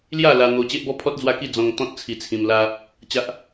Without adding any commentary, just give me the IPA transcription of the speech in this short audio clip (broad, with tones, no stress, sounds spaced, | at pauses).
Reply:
l j a˥˧ l a˧ n̪ o˧ t͡ɕ e˦ ʔ b ɔ˦ pʰ ɔ˦ t̚ d͡z w a˥˧ k i˥˧ d͡z ɔ̃˧ ŋ t̪ ɔ̃˦ t̚ t͡sʰ i˧ t͡sʰ ĩ˧ m l a˧ | t͡ɕ a˦ ʔ